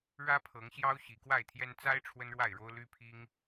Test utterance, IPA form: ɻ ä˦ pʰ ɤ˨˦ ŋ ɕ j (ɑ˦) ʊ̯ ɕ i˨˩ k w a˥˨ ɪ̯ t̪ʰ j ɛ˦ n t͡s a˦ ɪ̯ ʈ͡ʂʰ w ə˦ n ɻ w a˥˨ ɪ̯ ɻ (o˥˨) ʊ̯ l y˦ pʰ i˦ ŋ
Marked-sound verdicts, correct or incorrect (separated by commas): correct, incorrect